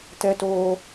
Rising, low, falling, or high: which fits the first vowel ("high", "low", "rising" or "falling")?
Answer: high